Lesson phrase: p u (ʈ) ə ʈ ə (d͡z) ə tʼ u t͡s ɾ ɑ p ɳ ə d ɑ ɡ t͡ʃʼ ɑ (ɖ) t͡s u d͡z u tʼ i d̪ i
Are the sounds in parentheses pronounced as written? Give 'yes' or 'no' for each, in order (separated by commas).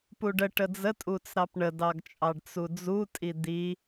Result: no, yes, yes